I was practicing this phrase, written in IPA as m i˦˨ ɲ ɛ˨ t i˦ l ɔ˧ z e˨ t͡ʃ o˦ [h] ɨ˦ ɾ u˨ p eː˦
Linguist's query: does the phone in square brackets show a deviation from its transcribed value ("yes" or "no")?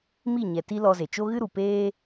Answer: yes